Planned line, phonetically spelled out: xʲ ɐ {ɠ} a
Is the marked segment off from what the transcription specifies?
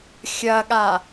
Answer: no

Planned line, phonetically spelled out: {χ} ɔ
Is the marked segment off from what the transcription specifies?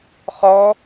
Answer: no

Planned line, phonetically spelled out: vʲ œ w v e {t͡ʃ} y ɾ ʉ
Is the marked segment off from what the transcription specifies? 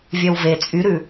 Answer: yes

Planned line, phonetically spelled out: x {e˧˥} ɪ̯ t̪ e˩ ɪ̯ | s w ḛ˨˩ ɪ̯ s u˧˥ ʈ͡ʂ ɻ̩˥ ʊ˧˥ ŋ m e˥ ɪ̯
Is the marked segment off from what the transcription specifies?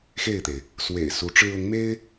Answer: yes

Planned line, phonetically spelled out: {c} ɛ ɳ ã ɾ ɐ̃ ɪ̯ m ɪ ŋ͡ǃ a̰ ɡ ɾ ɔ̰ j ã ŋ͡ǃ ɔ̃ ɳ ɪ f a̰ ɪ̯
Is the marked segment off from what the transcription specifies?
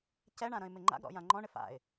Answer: no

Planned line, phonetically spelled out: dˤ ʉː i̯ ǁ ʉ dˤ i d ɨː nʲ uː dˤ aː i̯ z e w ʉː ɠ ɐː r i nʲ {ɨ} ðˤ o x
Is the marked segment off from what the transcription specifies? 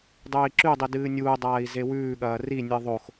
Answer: no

